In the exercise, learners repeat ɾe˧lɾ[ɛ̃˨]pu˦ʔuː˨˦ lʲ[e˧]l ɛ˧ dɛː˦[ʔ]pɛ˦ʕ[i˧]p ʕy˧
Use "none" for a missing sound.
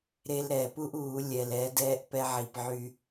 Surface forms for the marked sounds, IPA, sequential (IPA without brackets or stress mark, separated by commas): ɛ˨, ɛ˧, ʔ, i˧